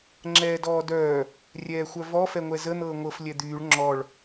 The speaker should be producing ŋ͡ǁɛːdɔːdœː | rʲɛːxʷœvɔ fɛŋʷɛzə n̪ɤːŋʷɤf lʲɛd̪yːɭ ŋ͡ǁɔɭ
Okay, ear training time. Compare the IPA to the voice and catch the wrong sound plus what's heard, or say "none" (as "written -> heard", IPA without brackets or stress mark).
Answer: none